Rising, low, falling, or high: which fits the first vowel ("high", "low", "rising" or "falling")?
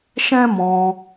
high